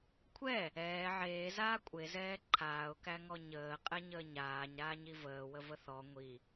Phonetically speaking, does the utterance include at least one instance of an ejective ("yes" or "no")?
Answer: yes